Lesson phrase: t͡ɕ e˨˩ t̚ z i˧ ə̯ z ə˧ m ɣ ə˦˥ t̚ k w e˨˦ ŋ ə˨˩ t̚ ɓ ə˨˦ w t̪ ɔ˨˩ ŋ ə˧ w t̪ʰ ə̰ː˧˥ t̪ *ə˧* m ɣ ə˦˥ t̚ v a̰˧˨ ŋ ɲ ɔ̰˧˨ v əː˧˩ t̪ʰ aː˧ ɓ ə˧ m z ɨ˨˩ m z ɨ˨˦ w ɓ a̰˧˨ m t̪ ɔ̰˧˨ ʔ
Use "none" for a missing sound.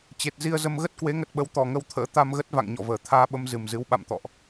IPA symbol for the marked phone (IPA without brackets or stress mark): a˧